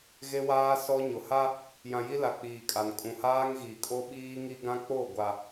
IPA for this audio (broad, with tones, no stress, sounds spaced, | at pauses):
ɣ e˦ w aː˦ s ɔ˦ ɲ ʊ˨ h a˦ | j ã˨ j i˦ l a˨ k͡p iː˨ kʼ a˨ n kʼ ũ˨ h aː˦ ŋ ɣ i˨ kʼ o˦ ɓ iː˦ ŋ i˦ ɡ ã˦ k͡p o˦˨ ɡʷ a˨